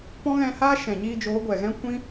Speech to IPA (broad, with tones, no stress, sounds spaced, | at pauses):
p ɔ̃˦ ɣ ɛ̃˧ h aː˦ ʃ ɛ̃˨ ɲ iː˧ d͡ʒ oː˨˦ ɡʷ ɛ˨ ɣ ɛ̃˦ kʷ ĩ˦